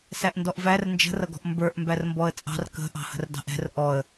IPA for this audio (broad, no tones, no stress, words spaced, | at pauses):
sæʔndɔʔvær nd͡ʒə̤rʌɡɔ̤ʔ mbə˞ʔ mbærmbɔə̯t͡sʼɑ̤r kə̤ ʔɑ̤hə̤rdɑ̤ʔɛ̤r ʔɔə̯